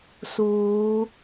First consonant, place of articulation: alveolar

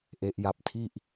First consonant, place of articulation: glottal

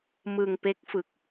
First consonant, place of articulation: labial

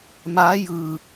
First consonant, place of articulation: labial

